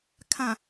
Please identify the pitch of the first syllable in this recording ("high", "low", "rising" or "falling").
low